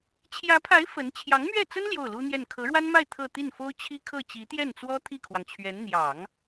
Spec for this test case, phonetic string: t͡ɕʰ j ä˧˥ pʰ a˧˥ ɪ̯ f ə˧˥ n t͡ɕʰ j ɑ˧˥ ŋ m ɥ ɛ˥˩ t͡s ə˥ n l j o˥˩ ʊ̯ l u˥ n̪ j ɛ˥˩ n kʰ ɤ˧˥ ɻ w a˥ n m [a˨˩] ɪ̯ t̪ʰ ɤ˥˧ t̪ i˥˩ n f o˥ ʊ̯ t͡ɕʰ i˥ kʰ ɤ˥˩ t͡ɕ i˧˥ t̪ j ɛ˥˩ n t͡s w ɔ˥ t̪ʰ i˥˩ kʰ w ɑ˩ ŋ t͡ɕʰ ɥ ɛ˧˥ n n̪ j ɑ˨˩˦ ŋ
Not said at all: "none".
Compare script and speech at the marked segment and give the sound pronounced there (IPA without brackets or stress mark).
a˥˧